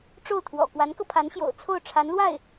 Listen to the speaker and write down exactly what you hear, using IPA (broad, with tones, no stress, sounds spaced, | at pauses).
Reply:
ʈ͡ʂ o˥˩ ʊ̯ t̪ʰ w ɔ̰˨˩ k w a˧˥ n k ɤ˧ pʰ a˧˥ n ɕ j o̰˨˩ ʊ̯ t͡sʰ o˥˩ ʊ̯ ʈ͡ʂʰ a˧˥ n l w a˥˩ ɪ̯